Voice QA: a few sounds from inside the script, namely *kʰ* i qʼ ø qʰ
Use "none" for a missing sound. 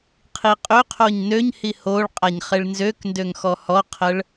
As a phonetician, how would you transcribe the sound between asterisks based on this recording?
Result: qʰ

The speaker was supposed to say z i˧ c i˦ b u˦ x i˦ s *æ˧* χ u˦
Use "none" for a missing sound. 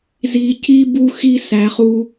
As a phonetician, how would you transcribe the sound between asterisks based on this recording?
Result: æ˧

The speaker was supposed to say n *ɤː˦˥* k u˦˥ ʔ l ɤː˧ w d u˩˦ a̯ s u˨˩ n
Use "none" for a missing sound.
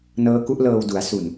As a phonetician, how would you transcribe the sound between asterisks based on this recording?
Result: ɤː˦˥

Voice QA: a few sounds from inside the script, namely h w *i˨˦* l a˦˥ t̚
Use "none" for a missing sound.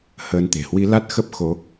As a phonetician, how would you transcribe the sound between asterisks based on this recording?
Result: i˨˦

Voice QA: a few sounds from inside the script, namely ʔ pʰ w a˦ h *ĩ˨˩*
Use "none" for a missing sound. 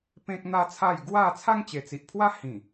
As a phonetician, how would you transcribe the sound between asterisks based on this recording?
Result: ĩ˨˩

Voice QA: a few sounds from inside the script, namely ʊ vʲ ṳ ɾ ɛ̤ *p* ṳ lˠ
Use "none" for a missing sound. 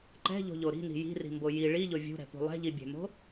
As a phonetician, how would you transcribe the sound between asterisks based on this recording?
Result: p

